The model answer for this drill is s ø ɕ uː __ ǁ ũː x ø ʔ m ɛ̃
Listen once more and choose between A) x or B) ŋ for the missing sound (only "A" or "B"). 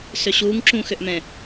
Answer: B